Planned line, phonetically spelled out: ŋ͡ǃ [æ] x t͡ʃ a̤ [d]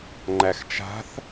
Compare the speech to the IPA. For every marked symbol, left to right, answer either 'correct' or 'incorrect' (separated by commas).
correct, incorrect